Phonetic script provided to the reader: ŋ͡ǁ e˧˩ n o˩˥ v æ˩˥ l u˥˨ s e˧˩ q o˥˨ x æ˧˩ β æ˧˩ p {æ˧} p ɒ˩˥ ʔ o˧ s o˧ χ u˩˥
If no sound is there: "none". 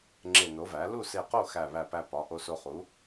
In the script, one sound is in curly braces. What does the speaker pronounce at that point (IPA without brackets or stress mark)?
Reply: æ˧